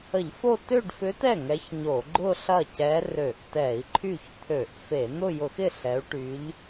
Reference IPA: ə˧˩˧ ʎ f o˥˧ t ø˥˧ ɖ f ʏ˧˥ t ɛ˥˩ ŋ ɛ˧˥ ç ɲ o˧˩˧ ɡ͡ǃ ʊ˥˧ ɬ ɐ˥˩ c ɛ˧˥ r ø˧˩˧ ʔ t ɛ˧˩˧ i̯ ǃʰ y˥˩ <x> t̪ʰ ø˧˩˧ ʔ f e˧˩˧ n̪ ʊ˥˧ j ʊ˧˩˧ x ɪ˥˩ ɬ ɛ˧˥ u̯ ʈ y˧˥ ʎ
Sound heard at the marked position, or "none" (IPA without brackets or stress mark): ç